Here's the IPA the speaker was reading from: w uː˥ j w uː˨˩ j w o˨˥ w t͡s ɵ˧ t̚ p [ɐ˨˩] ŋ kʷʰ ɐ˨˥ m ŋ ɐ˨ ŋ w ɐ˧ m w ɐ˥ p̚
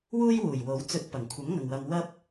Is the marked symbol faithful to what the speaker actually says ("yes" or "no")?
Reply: yes